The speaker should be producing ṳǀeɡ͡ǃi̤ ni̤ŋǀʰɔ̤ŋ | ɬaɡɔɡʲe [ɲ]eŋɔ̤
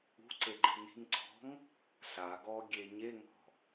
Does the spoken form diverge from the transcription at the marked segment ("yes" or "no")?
no